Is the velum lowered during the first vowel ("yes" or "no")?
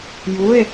no